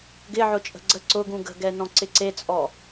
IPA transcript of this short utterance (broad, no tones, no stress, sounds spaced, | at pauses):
ɡ ɪ ʕ ʊ t͡ʃʼ ə̤ ɡ͡ǀ ə ǀ ʊ ɡ ũ ɡ ə̤ ɡ ɛ n ɔ̃ ǀ ɪ ǀ e t͡sʼ ɔ